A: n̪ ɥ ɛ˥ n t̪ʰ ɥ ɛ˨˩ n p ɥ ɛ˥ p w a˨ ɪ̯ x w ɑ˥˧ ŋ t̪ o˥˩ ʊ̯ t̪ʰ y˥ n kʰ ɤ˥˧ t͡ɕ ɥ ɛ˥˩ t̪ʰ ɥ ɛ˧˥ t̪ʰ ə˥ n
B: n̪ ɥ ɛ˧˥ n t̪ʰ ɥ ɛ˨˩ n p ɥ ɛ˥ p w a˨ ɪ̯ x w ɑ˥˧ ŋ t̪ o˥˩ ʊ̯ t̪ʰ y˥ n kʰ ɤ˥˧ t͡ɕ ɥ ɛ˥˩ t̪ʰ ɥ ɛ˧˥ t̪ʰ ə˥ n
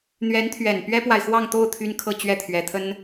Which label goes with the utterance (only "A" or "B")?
B